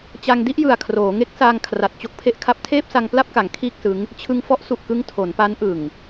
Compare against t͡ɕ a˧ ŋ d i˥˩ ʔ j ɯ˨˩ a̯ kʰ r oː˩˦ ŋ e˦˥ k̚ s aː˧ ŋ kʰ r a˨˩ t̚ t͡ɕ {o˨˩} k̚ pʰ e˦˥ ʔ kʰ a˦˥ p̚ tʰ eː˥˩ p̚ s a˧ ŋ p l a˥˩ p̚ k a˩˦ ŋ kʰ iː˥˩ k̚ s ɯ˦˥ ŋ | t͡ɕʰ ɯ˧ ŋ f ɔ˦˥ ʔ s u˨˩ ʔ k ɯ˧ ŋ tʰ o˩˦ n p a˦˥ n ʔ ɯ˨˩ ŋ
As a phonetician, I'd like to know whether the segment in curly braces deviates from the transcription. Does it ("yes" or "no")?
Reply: yes